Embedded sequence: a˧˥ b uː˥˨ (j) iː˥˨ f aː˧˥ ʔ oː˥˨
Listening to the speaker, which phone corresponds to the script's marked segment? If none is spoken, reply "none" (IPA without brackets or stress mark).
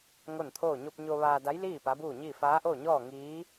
ɲ